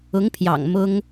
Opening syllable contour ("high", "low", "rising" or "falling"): rising